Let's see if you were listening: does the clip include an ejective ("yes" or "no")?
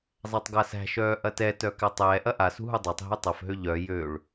no